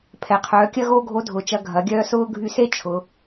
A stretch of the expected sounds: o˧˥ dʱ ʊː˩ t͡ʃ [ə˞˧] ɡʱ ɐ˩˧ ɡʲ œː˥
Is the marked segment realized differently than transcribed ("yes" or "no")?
yes